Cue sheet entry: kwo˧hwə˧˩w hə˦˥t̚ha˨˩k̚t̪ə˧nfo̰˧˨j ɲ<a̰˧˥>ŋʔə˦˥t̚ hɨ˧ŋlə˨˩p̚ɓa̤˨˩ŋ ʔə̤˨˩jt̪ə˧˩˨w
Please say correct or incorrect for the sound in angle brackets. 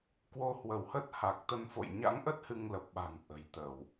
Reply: correct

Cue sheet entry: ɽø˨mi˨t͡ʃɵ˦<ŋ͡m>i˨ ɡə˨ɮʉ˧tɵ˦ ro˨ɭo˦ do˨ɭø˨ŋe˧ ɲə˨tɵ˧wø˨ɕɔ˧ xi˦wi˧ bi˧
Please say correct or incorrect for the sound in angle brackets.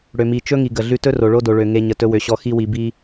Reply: incorrect: ŋ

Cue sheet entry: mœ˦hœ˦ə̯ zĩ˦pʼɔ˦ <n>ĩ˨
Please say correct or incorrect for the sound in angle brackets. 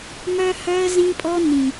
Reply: correct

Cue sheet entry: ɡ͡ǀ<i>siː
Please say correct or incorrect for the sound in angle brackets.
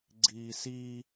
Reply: incorrect: iː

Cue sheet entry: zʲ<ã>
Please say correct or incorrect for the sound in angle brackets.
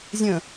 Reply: incorrect: ə̃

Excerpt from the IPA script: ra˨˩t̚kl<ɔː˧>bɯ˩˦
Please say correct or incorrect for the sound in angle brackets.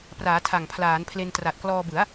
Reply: correct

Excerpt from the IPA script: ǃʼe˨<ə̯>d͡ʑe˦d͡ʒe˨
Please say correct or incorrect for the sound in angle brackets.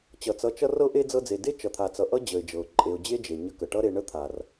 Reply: incorrect: ʊ̯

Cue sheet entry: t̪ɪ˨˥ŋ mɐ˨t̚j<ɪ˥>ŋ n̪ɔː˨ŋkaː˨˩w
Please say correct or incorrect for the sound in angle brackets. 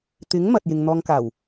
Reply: incorrect: ɪ˨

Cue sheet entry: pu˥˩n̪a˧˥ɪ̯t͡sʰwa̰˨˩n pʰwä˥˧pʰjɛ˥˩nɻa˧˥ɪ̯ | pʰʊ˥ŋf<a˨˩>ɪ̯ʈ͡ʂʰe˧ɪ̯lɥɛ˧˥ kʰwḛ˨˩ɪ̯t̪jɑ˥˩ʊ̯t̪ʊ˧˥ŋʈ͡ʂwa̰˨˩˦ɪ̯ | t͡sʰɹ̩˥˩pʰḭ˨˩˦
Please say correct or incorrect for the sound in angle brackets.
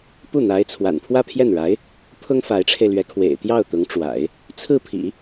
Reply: incorrect: a˧˥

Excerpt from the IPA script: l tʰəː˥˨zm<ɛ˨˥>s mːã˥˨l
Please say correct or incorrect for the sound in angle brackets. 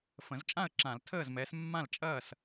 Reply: correct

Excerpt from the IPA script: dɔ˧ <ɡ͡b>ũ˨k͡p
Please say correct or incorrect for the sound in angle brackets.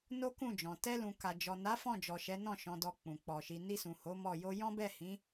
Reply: incorrect: k͡p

